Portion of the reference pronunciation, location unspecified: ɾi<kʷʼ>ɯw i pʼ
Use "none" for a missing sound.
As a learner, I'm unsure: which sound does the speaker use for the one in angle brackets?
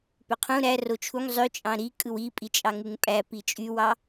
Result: kʼ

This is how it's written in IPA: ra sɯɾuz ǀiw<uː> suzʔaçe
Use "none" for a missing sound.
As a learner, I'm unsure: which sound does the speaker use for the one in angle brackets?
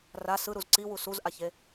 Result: u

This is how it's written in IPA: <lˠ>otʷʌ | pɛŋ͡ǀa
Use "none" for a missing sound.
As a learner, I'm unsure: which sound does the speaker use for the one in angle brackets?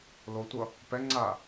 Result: l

